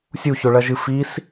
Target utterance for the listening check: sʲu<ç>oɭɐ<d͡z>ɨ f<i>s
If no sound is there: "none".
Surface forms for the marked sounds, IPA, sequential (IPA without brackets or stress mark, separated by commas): ç, ʒ, i